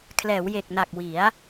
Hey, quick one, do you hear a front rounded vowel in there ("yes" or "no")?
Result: no